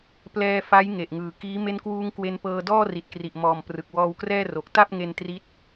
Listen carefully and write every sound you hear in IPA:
p l ɛː˧ f a˦˥ j ŋ e˨˩ ʔ ŋ ɯː˨˩ k iː˦˥ m e˦˥ n k w uː˧ ŋ k w e˧ n p ɤː˧ d ɔː˥˩ r i˨˩ t̚ k r i˨˩ ʔ m ɔː˨˩ m p r ɯ˨˩ k̚ w ɔː˧ w k r ɛː˥˩ r o˨˩ k̚ t a˥˩ p̚ ŋ e˧ n t r i˦˥ t̚

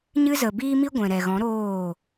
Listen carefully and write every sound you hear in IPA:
ɲ ɨ˦ z ə˨ b iː˦ m i˦ ɡʷ ɛ̃˨ ɾ ɛ˨ ɣ ɔ̃˨˦ ɾ oː˦˨

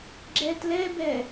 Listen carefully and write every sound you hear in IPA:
ɡ͡ǁ ɛ t l ɛ b ɛ

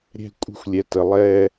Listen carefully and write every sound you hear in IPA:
ɾʲ ɛ̤˦ kʷʼ ə̤˦ xʷ lʲ ɛ˨ t ə˨ lˠ ɛ˦

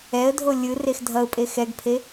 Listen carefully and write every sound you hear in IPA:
ɛ ə̯ dʱ o lʲ ɯ r e x dʱ ʌ ʊ̯ pʼ e x ɛ ɡ pʰ e

